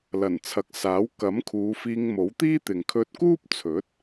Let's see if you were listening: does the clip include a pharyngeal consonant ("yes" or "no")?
no